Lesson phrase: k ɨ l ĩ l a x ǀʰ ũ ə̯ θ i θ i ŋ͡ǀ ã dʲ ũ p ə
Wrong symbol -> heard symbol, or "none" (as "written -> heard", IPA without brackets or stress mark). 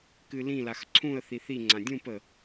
none